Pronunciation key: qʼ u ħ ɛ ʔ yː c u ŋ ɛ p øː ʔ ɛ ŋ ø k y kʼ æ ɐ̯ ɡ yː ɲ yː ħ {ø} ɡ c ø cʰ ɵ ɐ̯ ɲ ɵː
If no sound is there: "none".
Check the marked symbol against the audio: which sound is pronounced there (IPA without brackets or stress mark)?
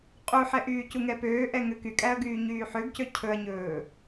ø